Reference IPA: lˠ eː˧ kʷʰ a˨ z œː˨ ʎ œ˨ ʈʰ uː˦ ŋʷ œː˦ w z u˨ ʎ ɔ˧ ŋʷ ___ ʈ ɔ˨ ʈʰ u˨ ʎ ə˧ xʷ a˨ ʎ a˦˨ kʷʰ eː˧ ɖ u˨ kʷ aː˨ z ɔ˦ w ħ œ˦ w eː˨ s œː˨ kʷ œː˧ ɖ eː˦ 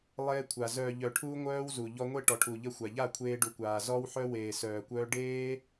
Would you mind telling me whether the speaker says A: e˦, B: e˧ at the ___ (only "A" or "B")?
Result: A